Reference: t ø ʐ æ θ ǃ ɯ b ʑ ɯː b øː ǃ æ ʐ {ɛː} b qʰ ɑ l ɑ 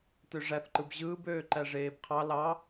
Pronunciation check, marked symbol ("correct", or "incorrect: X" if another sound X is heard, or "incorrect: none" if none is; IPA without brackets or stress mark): incorrect: eː